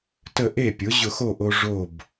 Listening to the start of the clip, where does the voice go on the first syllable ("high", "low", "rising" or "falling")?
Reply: falling